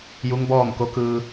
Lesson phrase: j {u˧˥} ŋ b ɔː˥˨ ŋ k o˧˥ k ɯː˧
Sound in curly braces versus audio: correct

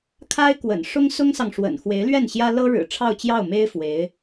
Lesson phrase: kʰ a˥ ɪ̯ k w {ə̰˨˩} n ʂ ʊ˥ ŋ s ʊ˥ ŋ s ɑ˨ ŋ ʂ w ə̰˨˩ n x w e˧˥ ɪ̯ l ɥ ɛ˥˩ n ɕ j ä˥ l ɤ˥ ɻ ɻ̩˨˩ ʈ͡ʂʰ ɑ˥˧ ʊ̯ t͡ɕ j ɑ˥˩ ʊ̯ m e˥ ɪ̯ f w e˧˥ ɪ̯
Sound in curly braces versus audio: correct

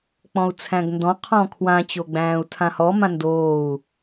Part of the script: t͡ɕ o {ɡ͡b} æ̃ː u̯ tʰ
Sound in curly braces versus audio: correct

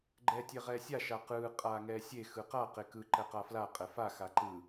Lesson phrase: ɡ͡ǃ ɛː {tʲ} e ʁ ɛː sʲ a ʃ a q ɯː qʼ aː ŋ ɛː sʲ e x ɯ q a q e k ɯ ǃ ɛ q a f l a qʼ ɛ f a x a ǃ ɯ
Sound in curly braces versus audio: correct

